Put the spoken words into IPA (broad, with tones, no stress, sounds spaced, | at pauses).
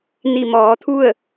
n i˧˩ m ɔː˩˧ t̪ʰ u˥˨ ə̯